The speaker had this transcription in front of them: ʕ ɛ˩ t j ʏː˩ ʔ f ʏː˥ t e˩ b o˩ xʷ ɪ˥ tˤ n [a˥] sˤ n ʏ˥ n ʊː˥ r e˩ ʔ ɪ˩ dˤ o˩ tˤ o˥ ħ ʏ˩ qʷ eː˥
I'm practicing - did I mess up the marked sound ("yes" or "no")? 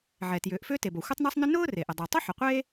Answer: no